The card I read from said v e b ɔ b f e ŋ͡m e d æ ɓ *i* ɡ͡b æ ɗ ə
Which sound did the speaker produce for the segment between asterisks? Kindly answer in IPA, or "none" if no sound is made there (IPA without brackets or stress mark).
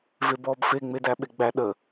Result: e